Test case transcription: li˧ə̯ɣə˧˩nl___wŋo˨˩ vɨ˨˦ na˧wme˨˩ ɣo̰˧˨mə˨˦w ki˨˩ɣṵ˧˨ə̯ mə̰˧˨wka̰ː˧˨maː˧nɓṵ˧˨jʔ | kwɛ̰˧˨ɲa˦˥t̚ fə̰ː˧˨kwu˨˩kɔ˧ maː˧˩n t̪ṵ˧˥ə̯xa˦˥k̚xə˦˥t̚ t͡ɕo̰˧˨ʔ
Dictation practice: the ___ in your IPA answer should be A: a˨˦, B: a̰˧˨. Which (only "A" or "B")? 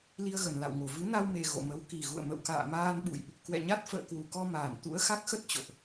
B